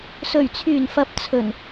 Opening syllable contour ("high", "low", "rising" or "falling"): low